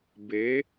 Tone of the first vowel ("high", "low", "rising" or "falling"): rising